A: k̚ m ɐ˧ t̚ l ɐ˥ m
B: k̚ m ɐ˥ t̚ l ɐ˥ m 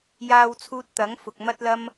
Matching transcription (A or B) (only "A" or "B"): B